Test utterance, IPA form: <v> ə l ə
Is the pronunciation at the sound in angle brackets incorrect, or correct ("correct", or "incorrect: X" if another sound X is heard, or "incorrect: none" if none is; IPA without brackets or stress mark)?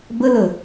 incorrect: b